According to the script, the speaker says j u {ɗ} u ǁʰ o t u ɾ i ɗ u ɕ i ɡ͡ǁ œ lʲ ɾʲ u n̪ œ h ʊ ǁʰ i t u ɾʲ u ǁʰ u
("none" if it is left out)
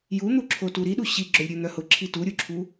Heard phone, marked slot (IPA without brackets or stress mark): n̪